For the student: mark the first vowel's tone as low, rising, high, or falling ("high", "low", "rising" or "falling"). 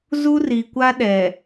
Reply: high